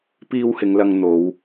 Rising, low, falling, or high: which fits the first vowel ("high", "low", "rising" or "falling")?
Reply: high